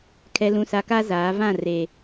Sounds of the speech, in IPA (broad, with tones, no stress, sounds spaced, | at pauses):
kʰ ɛ˨ l ũ˨ s a˨ k a˦ z aː˨˦ v ã˦˨ r e˨